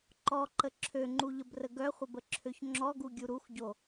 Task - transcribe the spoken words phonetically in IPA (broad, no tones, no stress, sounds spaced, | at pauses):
ǃ ɔ ǃ ə ǁʰ ø ŋ͡ǃ u ʎ ə b r ə ɡ œ χʷ ə b ə ǁʰ ø ç ŋ͡ǁ ɔ ɡ u ɡʲ u ɾ u x ɟ o